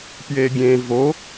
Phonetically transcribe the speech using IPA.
pjeɡʲẽ vo

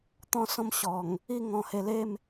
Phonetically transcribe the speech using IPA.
t̪ɔ̃˦sɔ̃˥˧mɕɔ˨˩ŋ | i˥˧ ŋɔ̃˧he˧le˥˧m

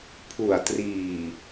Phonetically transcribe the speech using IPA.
pʰu˨˩a̯triː˨˩

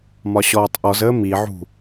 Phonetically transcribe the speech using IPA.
mɒɕɔːtˤʔɔzəː miʕṳ

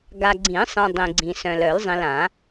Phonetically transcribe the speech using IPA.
ɡa˨ɡ͡ǀĩ˨˩˦sˤẽ˨ dˤĩ˨ɡ͡ǀĩ˨sœ̃˨l œ˨˩˦lzˤĩ˨lã˨˩˦

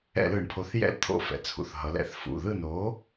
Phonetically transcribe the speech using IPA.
ɛ̰˧˩˧lɯ˧˩˧ɳpʰo˩˥θ jɛ̰˦˨lt̪ʰo̰˦˨fɛ̰˩˧t͡sʰṵ˩˧θ ɦʌ˩˧lɛ̰˧˩˧θfṵ˩˧˩ ðɯ˦˨no˩˥

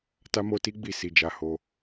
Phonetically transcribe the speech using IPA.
ta˦mo˦ti˦ɡ͡bi˦˨ si˧ d͡ʒa˧ho˧

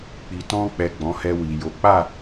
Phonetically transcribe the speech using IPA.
k͡pi˨tɔ̃˧k͡pɛ˨ ɡ͡bɔ̃˨˦hɛ˧wi˨jo˨˦ k͡pa˦˨

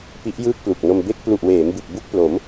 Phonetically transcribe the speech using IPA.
pi˦˥ʔ jɯː˥˩k̚plu˨˩k̚no˧m be˦˥k̚plu˨˩ʔweː˩˦m bɯ˨˩k̚ bu˥˩k̚plo˩˦m

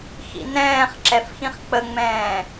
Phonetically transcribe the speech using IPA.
xḭnɛ̃ːχǁɛf xĩχk͡pəŋ͡mɛ̃ː

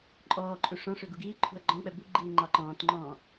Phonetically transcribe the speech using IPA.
ǃʼɔːǃʼu ʂɔ̃ ʂʏɡuɡiːǃʰṳɐ̯ ɡ͡ǃɔ̃k͡pɛ buɡ͡ǃiː ŋ͡ǃɑǃɔ̃ːtŋ͡ǃɔ̃ː

